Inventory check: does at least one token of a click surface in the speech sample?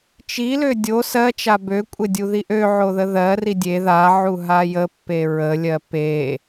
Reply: no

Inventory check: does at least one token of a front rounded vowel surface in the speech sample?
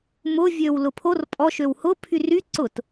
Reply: yes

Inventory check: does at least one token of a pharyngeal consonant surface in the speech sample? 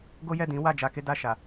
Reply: no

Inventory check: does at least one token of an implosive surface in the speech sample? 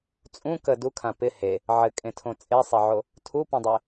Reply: no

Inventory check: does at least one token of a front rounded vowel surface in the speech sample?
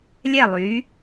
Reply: yes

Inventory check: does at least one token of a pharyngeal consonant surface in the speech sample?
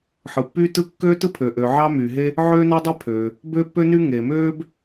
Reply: yes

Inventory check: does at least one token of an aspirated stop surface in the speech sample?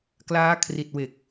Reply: yes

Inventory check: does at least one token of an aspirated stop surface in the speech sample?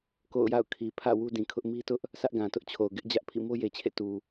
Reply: yes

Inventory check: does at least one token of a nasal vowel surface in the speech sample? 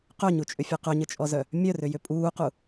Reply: no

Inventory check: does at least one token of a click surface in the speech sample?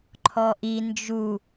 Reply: yes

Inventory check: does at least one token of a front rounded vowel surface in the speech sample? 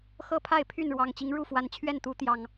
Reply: yes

